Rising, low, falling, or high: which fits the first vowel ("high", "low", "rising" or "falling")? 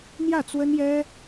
falling